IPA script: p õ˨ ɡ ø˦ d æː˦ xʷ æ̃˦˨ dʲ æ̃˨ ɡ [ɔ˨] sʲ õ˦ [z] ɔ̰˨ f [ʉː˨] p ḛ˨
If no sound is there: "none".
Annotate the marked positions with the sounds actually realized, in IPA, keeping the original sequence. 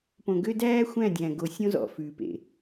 o˨, z, ʉː˨

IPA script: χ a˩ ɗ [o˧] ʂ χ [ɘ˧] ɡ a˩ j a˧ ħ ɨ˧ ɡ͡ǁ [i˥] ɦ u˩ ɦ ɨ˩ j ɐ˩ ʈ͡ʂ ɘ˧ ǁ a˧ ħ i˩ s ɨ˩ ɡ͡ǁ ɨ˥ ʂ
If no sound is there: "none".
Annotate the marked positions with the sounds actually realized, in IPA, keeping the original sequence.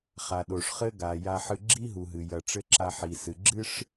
o˩, ɘ˥, i˥

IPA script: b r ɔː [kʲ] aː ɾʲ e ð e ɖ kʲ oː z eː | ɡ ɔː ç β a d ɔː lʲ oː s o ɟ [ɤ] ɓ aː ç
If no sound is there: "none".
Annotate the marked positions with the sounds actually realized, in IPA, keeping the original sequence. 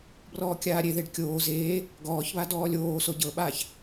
kʲ, ɤ

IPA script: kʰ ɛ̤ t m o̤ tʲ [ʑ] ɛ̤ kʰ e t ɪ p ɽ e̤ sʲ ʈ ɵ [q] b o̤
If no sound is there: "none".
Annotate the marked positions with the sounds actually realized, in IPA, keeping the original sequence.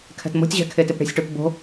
ʑ, p

